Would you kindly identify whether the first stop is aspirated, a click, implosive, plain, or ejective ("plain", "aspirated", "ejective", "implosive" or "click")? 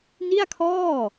aspirated